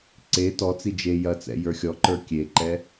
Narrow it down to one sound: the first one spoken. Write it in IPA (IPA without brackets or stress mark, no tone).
ǀ